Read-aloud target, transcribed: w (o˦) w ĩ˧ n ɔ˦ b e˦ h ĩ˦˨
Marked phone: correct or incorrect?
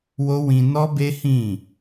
correct